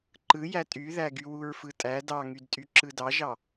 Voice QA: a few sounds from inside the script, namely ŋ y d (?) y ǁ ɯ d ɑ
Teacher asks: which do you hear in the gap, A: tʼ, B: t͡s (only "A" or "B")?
A